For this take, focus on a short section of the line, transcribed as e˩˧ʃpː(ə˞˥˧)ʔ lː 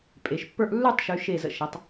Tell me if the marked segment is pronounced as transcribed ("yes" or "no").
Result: yes